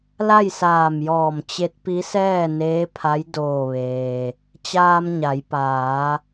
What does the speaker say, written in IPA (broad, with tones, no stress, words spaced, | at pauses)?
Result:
la˥˨jsaː˧˩mjɔː˧˩m t͡ɕe˧˥t̚pi˧˥sɛː˥˨ neː˧˥pʰa˧˥j doː˧˩ʋeː˩ | t͡ɕaː˧mɲa˩˧jpaː˩˧